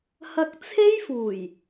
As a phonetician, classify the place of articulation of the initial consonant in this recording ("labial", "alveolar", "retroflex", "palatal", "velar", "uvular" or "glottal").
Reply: glottal